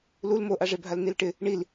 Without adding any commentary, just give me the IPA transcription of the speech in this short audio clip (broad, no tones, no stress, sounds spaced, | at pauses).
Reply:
l u l m o ʔ a ʐ e bʱ a l n i l ʈ ɪ | ɳ i l